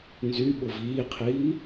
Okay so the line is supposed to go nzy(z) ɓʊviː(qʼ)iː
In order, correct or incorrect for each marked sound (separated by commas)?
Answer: incorrect, incorrect